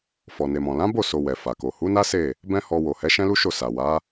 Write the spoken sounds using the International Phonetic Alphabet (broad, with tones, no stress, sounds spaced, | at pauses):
f ɔ˨ n e˨ m ɔ̃˨ l ã˨˦ b o˦˨ s o˧ w ɛ˨ f a˨ k o˨ h u˨˦ n a˦ s e˦˨ | b ɛ̃˦ h ɔ˧ w o˨ h ɛ˨˦ ʃ ɛ̃˦ l u˦ ʃ o˦˨ s a˨ w a˨˦